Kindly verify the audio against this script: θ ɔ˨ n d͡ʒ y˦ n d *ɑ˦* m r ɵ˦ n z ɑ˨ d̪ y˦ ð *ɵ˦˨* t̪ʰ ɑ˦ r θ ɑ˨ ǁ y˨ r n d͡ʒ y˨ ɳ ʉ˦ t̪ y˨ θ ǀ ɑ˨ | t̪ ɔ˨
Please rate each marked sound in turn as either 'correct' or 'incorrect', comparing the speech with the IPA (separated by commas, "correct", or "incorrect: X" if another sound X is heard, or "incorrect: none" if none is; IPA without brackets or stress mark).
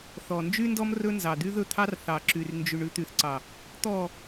incorrect: ɔ˦, correct